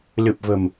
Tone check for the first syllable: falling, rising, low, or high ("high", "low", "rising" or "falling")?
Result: low